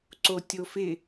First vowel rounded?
yes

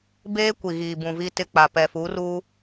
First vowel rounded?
no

